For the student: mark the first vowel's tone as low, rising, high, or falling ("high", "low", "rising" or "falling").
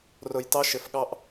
low